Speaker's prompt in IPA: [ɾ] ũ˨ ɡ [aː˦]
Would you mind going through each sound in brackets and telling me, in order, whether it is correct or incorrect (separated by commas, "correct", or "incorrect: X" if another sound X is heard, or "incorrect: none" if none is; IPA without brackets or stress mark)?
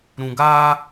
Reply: correct, correct